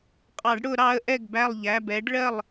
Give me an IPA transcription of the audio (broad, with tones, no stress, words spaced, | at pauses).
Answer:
qʼɑ˨˩˦ɖ ɽʊ˨˩˦ ɾɑ˨˦ə̯ʔɛ˥˩ɡbæ˥˩lˠ ʎæ˩˧˩bɛ˨˦ɖɭɜ˥˩lˠ